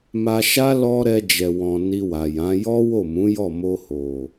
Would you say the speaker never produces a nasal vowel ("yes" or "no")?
no